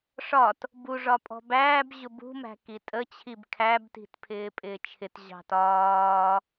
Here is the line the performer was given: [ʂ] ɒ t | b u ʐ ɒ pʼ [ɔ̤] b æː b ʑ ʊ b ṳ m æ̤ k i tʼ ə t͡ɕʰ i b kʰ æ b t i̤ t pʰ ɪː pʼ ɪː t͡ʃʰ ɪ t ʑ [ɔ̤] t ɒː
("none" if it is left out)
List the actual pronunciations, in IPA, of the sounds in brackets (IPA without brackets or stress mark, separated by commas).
ʂ, ɔ̤, ɑ̤